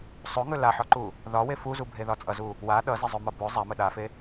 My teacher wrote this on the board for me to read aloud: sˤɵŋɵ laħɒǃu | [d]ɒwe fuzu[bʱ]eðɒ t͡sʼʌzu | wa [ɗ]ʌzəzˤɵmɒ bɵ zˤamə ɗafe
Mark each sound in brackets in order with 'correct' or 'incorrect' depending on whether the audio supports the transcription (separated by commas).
incorrect, correct, correct